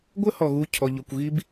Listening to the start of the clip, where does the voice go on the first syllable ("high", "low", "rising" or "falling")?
high